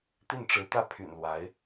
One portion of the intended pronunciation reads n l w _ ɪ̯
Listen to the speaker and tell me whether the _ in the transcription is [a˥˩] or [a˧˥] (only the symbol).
a˧˥